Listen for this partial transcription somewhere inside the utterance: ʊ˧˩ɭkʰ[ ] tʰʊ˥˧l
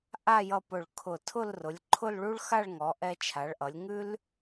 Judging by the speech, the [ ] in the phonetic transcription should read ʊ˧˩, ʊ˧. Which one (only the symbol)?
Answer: ʊ˧˩